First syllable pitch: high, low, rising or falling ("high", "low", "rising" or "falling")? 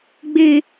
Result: high